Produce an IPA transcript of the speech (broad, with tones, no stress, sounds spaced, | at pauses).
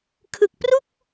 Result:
kʰ ɯ˨˩ k̚ p r u˥˩ k̚